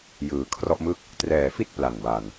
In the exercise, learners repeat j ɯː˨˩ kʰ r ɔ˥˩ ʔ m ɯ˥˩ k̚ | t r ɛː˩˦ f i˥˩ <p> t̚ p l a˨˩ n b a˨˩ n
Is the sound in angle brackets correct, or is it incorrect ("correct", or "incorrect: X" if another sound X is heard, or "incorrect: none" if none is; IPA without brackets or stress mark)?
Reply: incorrect: none